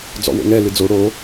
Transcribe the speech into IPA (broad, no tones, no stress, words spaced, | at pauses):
d͡zɔ̰wo̰ŋɛ lɨd͡zo ɽo